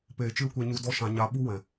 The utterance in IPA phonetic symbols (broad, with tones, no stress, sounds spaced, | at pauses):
p eː˨ t͡ʃ ɨ˦ l kʷ e˧ ɲ u˧ d ɔ˦ ʃ ã˧ ɲ a˧ ɓ u˦ w ɛ̃˨